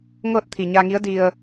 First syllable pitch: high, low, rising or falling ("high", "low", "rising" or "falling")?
falling